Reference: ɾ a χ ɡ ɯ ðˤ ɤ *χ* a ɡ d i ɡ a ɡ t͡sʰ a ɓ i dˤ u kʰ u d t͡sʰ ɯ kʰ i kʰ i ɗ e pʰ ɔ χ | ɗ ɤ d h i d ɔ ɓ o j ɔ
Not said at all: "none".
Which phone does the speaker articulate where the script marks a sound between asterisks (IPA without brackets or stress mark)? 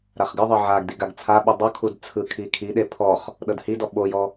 ʕ